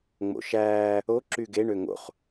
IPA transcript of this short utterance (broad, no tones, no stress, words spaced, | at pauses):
ŋ͡mo̰ʃæː | o ǁyɡe ɳøŋo̰χ